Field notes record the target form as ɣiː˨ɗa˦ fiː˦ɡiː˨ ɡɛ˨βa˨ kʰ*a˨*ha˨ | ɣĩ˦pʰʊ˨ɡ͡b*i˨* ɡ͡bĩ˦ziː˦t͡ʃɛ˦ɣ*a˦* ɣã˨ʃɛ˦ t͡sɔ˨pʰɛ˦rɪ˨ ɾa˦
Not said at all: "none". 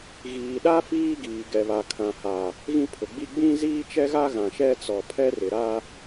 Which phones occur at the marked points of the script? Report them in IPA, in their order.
ã˨, i˦, a˦

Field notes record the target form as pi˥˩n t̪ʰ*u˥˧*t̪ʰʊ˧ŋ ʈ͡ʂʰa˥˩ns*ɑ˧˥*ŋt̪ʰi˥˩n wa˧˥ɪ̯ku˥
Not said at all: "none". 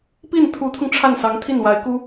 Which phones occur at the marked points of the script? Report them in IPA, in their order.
u˧˥, ɑ˧˥

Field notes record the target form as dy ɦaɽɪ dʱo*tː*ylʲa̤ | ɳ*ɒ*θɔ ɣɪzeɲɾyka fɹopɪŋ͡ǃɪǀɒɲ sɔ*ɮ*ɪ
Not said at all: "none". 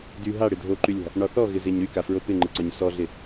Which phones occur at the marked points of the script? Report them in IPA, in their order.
ǃ, ɒ, ɮ

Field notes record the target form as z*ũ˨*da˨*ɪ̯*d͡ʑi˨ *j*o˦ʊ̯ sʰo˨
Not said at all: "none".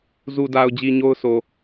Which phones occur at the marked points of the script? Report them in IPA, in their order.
u˨, ʊ̯, ɲ

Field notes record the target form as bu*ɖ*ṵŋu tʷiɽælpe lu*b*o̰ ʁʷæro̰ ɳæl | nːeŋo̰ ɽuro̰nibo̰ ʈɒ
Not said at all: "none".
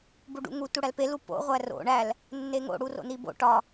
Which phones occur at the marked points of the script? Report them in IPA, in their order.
ɖ, p

